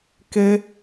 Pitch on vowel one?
high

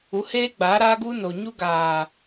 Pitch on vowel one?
rising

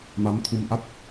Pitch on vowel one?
rising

